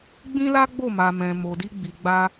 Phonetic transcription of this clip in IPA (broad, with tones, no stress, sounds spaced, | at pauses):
ɡ͡b ĩ˦ l a˦ ɡ͡b o˦˨ m a˧ m ɛ̃˧ m o˧ d i˦ ɡ͡b i˧ ɡ͡b a˦